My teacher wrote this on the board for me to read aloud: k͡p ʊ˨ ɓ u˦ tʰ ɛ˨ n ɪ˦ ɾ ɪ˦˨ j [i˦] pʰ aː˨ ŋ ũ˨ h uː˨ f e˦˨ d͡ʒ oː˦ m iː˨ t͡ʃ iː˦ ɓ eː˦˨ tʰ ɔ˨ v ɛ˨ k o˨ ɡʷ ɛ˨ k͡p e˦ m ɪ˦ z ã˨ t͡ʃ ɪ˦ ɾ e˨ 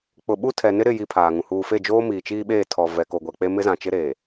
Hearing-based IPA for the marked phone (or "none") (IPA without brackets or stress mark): i˦